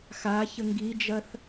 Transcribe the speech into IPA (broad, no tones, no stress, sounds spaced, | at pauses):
x a ç ə ŋ ɡ i d͡ʒ ɐ θ